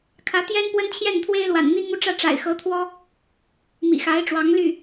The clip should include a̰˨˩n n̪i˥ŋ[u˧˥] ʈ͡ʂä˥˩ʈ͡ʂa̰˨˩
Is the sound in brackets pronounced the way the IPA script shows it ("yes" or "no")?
no